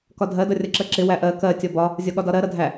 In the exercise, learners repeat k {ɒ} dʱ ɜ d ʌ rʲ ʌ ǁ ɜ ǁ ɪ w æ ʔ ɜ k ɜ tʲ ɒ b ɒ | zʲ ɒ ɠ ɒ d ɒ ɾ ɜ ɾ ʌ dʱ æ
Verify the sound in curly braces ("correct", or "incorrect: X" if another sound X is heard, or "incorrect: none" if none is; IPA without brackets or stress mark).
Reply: correct